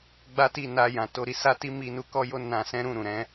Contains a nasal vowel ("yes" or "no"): yes